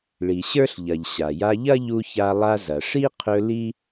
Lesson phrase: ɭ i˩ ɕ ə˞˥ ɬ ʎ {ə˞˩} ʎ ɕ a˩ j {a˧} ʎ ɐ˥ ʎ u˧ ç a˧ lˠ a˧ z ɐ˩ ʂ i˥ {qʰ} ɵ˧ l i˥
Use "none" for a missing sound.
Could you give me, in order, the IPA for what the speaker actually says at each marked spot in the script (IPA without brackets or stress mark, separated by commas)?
ɐ˩, a˧, qʰ